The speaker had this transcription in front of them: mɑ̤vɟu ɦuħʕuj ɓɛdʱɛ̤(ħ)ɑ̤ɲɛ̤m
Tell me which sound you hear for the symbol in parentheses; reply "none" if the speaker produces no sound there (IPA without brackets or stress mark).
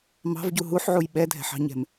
ħ